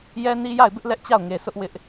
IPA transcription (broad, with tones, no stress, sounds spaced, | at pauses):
j ɛ˦ n i˦ j a˦˨ ɪ̯ b ɪ˦ ʔ l ɛ˦ ʔ t͡ɕ a˦˨ ʊ̯ ŋ e˨ s ʊ˦ ʔ w ɪ˦ ʔ